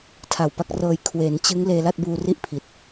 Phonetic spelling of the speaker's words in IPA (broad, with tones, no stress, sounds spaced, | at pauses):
tʰ a˨˩ w p a˦˥ k̚ r ɤː˧ j kʰ w e˩˦ n t͡ɕ ɯ˦˥ ŋ l eː˧ l a˥˩ t̚ b uː˧ r i˥˩ ʔ pʰ i˨˩ t̚